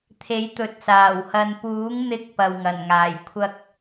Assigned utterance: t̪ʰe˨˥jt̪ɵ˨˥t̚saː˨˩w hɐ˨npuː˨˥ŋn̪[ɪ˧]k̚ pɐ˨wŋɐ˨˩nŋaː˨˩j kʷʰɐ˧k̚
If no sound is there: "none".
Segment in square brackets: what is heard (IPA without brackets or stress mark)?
ɪ˧